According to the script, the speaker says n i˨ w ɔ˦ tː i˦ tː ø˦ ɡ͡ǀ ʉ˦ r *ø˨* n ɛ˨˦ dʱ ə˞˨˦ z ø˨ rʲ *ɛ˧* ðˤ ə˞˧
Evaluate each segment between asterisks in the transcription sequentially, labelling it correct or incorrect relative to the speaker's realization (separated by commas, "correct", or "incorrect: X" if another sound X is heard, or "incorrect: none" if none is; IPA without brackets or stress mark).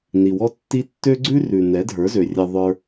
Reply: incorrect: ʉ˨, correct